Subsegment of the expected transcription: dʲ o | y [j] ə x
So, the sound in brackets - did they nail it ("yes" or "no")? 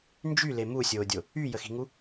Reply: yes